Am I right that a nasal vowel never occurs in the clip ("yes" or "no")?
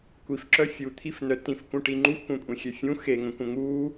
no